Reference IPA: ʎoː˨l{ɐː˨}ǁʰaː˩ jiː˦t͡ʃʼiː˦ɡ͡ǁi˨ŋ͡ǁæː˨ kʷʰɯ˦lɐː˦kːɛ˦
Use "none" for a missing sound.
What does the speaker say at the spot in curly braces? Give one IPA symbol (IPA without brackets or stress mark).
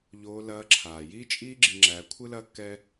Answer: ɐː˨